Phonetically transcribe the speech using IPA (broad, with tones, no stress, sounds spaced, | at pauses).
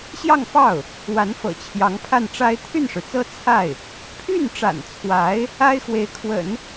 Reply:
ɕ j ɑ˥˧ ŋ f ɑ˥˩ ʊ̯ | w a˧˥ n f ɤ̰˨˩ t͡ɕʰ j ɑ˧˥ ŋ pʰ a˥˩ n ʈ͡ʂ a˥ ɪ̯ t̪ʰ y˥˩ n ʂ ɻ̩˩ t͡s ɤ˥ t͡sʰ a˥˩ ɪ̯ | pʰ y˥˩ n ʈ͡ʂ a̰˨˩ n t͡sʰ w a˧˥ ɪ̯ | a˥ ɪ̯ x w e˧˥ ɪ̯ kʰ w ə̰˨˩˦ n